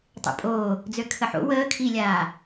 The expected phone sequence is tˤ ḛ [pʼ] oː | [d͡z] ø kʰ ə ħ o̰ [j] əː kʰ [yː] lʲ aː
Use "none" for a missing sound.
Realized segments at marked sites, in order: pʼ, d͡z, w, iː

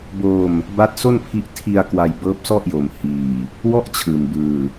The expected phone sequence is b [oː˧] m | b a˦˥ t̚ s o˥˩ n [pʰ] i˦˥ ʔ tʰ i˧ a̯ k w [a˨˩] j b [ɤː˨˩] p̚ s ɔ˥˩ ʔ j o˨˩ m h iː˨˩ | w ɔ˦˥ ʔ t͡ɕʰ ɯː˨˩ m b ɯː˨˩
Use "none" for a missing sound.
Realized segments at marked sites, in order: oː˧, pʰ, a˧, ɤː˦˥

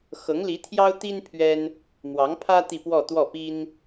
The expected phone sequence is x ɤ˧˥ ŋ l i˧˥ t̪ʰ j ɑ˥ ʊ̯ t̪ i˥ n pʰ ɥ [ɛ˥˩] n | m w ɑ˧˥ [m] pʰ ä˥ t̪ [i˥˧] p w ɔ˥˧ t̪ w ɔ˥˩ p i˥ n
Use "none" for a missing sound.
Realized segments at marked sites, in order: ɛ˥, ŋ, i˥˧

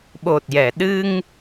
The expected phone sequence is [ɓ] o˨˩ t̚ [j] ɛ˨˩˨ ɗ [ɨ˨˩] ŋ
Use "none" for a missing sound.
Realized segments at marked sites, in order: ɓ, j, ɨ˧

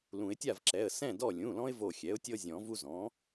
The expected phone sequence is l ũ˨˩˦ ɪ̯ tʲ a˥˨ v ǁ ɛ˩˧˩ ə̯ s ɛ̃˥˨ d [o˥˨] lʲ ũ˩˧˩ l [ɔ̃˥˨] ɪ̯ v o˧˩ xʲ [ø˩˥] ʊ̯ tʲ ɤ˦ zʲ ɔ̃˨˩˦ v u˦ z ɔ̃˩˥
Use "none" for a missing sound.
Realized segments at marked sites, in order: ɔ˥˨, ɔ̃˦, ɛ˩˥

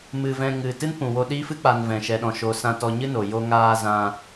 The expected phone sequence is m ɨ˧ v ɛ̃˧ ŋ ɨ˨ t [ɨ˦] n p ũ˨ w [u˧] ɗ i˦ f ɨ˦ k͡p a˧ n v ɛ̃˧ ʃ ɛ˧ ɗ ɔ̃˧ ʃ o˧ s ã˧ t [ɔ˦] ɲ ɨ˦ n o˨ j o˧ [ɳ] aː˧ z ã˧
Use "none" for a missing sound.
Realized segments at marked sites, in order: ɨ˦, o˧, ɔ˧, ŋ

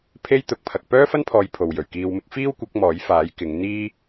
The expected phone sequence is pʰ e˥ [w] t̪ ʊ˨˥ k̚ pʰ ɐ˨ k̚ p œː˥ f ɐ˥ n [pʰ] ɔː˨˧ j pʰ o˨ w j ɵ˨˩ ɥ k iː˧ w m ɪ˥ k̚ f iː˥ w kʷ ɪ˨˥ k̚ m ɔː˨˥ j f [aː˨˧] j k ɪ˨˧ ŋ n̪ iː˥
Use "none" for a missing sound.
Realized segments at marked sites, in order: j, pʰ, aː˨˥

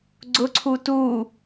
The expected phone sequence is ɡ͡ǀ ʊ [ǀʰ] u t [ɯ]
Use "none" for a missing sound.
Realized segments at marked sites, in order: ǀʰ, u

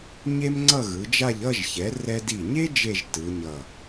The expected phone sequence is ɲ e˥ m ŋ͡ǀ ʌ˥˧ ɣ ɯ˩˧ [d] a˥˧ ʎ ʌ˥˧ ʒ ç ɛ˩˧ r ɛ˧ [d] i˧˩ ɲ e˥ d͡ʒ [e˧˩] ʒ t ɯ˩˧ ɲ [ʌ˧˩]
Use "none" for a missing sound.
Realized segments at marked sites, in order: d͡ʒ, d, e˥˧, ʌ˧˩

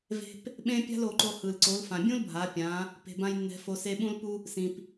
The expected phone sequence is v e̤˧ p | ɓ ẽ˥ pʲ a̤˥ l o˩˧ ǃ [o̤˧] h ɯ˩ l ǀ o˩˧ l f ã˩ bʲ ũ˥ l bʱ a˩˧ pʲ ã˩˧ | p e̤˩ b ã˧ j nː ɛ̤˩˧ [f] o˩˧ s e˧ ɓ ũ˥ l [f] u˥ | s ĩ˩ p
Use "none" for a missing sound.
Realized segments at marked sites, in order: o˧, f, p

